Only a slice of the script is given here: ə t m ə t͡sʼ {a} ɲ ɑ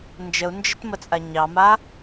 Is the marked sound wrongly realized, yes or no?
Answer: no